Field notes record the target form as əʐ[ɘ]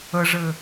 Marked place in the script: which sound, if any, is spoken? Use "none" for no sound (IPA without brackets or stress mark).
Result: ɘ